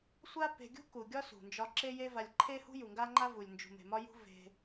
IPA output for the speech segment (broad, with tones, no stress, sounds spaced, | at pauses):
sʷ a˦ p e̤˧ ɡʲ ṳ˦ k u˨ ɡʲ ɒ˦ s ṳ˨ n d͡ʒ ɒ˧ ǁ e˦ j e˦ v a˧ lʲ ǃʰ e˦ h ṳ˦ j u˨ ŋ ɡ a˦ ŋ͡ǃ a˦ v u˨ lʲ n d͡ʒ ṳ˨ m e̤˨ m ɒ˧ j ṳ˧ v e̤˧